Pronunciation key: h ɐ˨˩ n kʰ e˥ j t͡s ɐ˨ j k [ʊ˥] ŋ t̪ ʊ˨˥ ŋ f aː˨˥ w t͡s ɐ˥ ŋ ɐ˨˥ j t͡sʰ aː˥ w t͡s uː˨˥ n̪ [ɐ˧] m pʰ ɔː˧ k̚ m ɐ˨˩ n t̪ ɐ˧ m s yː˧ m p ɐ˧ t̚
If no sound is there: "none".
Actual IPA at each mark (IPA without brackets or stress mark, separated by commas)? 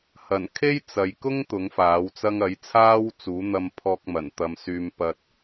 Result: ʊ˥, ɐ˧